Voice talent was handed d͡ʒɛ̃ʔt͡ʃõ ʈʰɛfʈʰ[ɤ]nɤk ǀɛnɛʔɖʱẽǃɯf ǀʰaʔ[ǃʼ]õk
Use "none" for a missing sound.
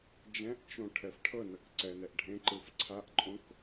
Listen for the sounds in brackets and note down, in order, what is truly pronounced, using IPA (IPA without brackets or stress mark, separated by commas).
ɤ, ǃʼ